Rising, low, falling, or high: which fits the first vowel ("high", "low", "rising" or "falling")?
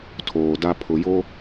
low